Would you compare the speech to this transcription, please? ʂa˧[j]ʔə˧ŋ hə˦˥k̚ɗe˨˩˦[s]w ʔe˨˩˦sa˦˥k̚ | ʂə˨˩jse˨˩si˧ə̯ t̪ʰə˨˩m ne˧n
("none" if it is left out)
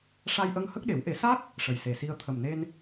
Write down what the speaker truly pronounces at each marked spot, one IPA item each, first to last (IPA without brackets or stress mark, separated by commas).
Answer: j, none